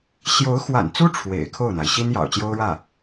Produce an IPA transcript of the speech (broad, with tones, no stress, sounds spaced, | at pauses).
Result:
ɕ j o˧˥ ʊ̯ x w a̰˨˩ n t͡s u˥ ʈ͡ʂʰ w ḛ˨˩ ɪ̯ kʰ o˥˩ ʊ̯ n̪ a˩ ɪ̯ ɕ i˥ n j ɑ̰˨˩ ʊ̯ t͡ɕ j o˥ ʊ̯ ɻ ä˥˩